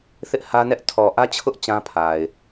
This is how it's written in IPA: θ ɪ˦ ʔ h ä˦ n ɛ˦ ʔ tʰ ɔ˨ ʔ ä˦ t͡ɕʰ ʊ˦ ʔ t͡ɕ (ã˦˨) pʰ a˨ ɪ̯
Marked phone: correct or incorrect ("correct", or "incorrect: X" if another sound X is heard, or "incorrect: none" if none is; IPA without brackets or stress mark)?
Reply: incorrect: ã˦